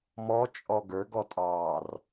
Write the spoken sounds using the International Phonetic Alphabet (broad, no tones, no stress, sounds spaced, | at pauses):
m ɔ t͡ʃʼ ɔ ɡ ə˞ ɡ ɔ tʼ ɑː r